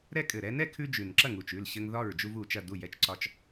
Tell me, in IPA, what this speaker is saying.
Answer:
ɾ ɛ˦ kʼ ɘ˨˩ ɾ ɛ˦ n ɛ˥˨ kʰ ʉ˦ d͡ʒ ʉ˨˩ n ǁ ɐ˥˨ ŋ u˨˩ t͡ʃ ʉ˥˨ l ɕ ɘ˦ ŋ ð ɒ˥˨ ɹ d͡ʒ u˦ v u˨˩ t͡ʃ ɐ˥˨ d u˥˨ j ɛ˦ t͡ʃ ǀ ɒ˦ t͡ʃ

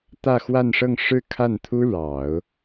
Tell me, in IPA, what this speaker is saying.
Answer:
t̪ ä˥˧ x w a˥˧ n ʂ ɤ˥˧ ŋ ʂ ɻ̩˥˧ kʰ a˥˩ n t̪ʰ u˥ ɻ ɑ˨˩˦ ʊ̯

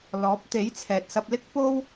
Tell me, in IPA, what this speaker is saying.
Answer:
l ɔː˨˥ p̚ t̪ e˨˥ j t͡sʰ ɛː˨ t̚ s ɐ˧ p̚ l ɪ˥ k̚ p o˥ w

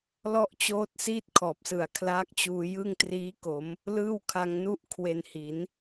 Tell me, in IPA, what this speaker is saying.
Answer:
l ɔ˥˩ ʔ t͡ɕ oː˦˥ t̚ s iː˥˩ t̚ kʰ ɔː˨˩ p̚ s ɯ˨˩ a̯ kʰ l aː˦˥ k̚ t͡ɕ uː˧ j ɯ˥˩ ŋ t r iː˦˥ k o˩˦ m | l ɯː˥˩ w kʰ a˧ ŋ n u˥˩ ʔ kʰ w e˧ n h i˩˦ n

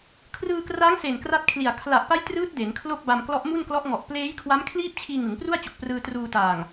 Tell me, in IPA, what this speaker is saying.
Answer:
kʰ r ɯː˧ k r aː˦˥ ŋ s e˨˩ n k r a˦˥ t̚ kʰ l i˨˩ a̯ kʰ l a˨˩ ʔ p a˦˥ j t r ɯː˦˥ t̚ d e˩˦ n kʰ l o˥˩ k̚ b a˧ m k l ɔ˦˥ ʔ m u˥˩ n k l ɔ˦˥ ʔ ŋ ɔ˨˩ ʔ p l eː˦˥ j kʰ w a˦˥ m kʰ l iː˥˩ p̚ t͡ɕʰ iː˧ ŋ ɯ˩˦ ŋ p r u˥˩ a̯ t͡ɕ o˨˩ k̚ p r ɯː˧ t r uː˧ t aː˨˩ ŋ

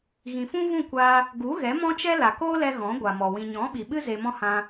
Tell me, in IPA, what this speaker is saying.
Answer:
ɣ ĩ˨ f ũ˦ v ũ˦˨ kʷ aː˧ | ɡ u˨˦ ɣ ɛ˨˦ m ɔ̃˦ t͡ʃ ɛ˦ l a˨ k oː˦ l ɛ˧ ɣ ɔ̃˨˦ ɡʷ a˨ m ɔ˨ w ĩ˨ ɲ ɔ̃˨˦ ɓ i˨ ɓ ɨ˦ z e˧ m ɔ̃˦ h ã˧

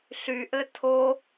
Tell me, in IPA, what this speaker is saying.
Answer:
ɬ y ʔ ɘ tʰ o

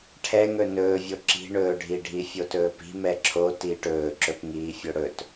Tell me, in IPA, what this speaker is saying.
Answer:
ʈʰ ɛ ŋ ɵ n ɵː vʲ o ǁ i̤ ɳ ɵː ɖʱ i ɖʱ i fʲ o t ɵː p i̤ m ɛ ǁʰ o t iː ʈ ɵː ǁ ɵ p ŋ iː fʲ o ɽ ɵ t

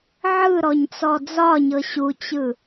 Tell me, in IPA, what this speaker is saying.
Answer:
ʕ ɯ ɾ ɔ ɲ t͡s ɔ d͡z ɒ ɲ ɤ ɕ u t͡ɕ ɯ

